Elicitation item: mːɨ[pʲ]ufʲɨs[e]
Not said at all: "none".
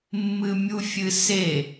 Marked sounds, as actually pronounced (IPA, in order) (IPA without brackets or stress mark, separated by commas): mʲ, e